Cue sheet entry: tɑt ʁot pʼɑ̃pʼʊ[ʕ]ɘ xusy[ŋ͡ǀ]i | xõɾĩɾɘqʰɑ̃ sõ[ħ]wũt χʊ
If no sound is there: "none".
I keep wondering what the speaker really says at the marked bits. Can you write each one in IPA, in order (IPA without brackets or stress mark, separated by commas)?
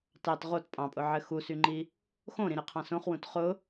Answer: ʕ, ŋ͡ǃ, χ